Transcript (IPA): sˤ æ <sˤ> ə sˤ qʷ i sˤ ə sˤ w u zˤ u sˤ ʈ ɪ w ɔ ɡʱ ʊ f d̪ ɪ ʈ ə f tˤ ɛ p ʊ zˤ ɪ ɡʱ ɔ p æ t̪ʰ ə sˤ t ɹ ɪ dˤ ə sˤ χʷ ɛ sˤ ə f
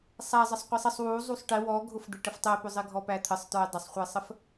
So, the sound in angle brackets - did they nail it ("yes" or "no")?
no